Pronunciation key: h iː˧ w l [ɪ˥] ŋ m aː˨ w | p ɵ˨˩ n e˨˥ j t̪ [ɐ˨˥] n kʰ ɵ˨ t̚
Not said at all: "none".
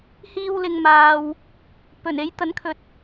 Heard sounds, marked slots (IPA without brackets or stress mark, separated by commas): ɪ˨, ɐ˨˥